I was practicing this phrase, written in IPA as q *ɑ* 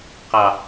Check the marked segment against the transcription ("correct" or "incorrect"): correct